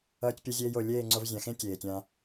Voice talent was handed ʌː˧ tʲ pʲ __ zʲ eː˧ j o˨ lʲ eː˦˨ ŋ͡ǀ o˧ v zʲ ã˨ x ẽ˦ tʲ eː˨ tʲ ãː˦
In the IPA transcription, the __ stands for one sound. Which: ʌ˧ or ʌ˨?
ʌ˧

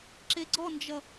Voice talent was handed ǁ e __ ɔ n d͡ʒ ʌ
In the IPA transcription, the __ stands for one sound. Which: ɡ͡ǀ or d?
ɡ͡ǀ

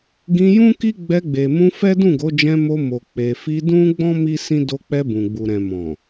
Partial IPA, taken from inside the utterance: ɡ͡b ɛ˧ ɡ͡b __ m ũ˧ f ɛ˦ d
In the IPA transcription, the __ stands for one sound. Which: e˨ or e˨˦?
e˨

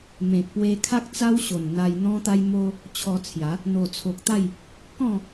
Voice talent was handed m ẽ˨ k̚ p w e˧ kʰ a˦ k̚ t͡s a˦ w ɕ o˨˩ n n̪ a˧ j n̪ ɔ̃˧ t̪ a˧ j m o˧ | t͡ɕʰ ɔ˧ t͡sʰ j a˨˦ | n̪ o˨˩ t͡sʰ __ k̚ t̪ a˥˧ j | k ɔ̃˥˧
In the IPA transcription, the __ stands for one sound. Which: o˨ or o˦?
o˨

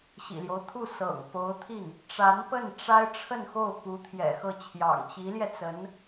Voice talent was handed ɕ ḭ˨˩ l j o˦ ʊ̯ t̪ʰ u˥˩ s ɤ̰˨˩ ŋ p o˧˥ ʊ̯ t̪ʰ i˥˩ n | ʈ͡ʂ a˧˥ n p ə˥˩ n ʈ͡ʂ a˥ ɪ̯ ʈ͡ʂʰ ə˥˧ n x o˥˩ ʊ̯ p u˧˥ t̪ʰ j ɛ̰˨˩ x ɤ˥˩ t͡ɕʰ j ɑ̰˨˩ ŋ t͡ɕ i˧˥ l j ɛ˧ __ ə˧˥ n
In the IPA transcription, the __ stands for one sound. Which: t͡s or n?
t͡s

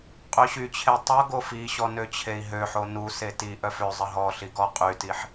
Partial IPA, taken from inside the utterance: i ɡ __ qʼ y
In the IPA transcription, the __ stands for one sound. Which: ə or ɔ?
ɔ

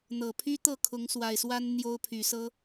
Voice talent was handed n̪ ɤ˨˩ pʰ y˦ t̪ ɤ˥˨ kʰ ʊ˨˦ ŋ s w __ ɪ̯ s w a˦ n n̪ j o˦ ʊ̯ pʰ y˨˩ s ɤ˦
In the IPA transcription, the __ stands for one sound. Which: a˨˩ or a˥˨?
a˨˩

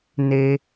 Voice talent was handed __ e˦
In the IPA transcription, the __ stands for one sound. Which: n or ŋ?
n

